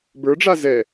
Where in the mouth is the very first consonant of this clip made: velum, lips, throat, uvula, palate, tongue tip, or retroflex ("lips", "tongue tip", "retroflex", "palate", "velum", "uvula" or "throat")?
lips